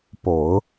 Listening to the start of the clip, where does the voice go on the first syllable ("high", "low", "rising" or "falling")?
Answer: low